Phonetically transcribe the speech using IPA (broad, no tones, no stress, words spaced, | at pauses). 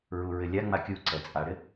ɹuɹɪlʲaŋ͡ma kʲuǀɛ t͡sʼaɽɪ